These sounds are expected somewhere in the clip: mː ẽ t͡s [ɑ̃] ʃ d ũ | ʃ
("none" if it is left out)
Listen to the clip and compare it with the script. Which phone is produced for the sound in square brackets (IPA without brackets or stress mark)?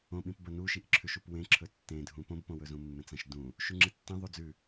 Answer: ɐ̃